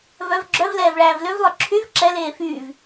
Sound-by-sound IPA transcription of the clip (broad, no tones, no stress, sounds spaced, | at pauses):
v œ v ɡ͡ǁ œ v l ɛː v ɭ æː v l ø v lˠ œ ǁʰ y v ǁ ɛ l eː f yː v